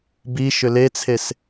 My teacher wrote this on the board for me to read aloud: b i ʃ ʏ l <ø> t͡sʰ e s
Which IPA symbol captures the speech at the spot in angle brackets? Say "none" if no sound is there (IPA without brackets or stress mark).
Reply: e